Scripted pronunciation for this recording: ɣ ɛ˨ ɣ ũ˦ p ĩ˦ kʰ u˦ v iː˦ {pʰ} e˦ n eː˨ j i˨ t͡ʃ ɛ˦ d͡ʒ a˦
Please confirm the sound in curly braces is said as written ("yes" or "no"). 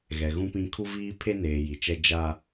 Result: yes